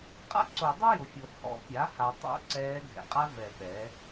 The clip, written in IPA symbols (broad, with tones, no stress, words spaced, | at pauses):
qʼa̰˥ǀo˨˩˦dˤʊ˥ jʊ˨fʲo˨ hɔ̰˨˩˦pʲa˩˥ha˨tˤo̰˧˥ ǀɛː˧˥ ɡʱɛ̰˨qʼa˥ vɛ˨˩˦ ɓɛː˩˥